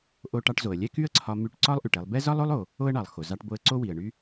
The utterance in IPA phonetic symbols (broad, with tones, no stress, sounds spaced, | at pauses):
ʔ o˧ ʈ ɑ˧ ʈ z o˩ ə̯ lʲ ɛ˥ k y˥ ə̯ ǀʰ ɒ˧ m y˧ ʈ ǀ ɒ˥ lˠ ʔ y˩ ʈ ɛ˧ lˠ b ɛ˥ z ɒ˥ lˠ o˥ lˠ o˩ | o˥ ə̯ ɳ ɑ˩ lˠ x o˩ z ɑ˧ ʈ b o˧ ə̯ ǀ o˥ w i˩ ə̯ ɳ y˥